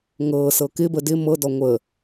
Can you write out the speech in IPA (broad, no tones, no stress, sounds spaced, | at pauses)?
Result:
ŋ ɤː s ɤ k ɪ b ə d ɪ m ɤ d ɔ ŋʷ ə